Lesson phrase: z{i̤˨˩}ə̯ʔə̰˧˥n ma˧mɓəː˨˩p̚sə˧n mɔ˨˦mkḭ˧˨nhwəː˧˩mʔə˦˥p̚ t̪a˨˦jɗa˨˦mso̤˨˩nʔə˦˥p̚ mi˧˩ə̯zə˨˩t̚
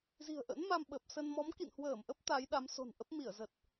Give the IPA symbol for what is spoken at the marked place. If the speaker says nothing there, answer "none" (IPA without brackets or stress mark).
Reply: i̤˨˩